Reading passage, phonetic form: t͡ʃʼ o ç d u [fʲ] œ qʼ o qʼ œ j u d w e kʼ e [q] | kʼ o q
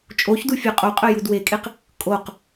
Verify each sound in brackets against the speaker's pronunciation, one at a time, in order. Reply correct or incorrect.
correct, correct

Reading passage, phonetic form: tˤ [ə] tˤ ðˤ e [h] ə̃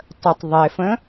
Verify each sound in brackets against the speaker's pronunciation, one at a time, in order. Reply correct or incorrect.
correct, incorrect: f

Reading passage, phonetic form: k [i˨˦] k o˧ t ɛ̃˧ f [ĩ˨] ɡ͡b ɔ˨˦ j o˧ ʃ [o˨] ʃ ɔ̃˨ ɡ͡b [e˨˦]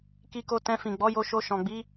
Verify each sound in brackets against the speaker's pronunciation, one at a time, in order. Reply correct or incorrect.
incorrect: i˧, correct, incorrect: o˧, incorrect: i˨˦

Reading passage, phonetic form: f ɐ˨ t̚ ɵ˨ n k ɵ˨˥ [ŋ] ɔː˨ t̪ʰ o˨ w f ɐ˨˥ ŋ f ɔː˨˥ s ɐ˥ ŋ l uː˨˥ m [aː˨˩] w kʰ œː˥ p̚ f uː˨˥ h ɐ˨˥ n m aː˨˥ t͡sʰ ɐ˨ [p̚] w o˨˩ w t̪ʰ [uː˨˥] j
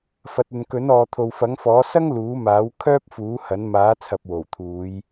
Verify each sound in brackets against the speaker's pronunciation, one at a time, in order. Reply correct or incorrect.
incorrect: n, incorrect: aː˨˥, correct, incorrect: uː˨˧

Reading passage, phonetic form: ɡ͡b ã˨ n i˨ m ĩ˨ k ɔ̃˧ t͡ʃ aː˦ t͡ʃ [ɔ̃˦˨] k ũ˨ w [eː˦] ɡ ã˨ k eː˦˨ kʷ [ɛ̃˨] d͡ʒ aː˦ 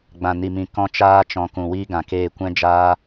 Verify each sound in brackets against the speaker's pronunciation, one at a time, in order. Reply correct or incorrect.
incorrect: ɔ̃˧, incorrect: iː˦, incorrect: ɛ̃˦

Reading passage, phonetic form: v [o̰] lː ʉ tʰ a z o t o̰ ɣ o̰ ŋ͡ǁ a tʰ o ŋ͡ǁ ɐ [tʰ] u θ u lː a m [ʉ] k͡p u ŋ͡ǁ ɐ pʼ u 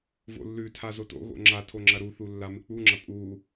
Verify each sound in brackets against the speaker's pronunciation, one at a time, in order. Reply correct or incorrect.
correct, incorrect: ɾ, incorrect: ɨ

